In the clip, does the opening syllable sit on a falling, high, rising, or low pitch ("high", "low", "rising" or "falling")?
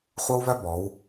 high